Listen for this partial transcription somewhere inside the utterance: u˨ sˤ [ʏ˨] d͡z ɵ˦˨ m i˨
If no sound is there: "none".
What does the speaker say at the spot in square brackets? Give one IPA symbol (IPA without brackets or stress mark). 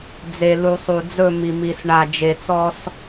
u˨